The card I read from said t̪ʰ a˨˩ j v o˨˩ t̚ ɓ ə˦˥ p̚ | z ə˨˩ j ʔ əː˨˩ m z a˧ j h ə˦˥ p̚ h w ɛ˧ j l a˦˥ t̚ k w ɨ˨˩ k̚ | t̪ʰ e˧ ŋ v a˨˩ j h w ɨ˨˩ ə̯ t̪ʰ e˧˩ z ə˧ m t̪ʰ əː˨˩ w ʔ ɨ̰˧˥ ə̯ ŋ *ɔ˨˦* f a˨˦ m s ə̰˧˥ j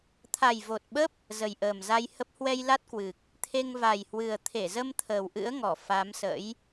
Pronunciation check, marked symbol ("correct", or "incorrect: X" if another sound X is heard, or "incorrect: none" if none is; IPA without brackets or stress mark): incorrect: ɔ˧˩